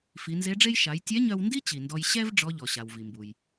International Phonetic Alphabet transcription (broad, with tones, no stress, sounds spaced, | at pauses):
f i˩˧ n z e˧˥ ɖ͡ʐ e˥ j ʃ a˩˧ j tʲ ɛ˧˥ ɲ œ˧ w n d i˥ t͡ɕ i˩ n d ɔ˧ j ɕ ɛ˥ v ɖ͡ʐ ɔ˧˥ ʎ ɔ˩ ɕ a˩ w v i˩ m b u˩ j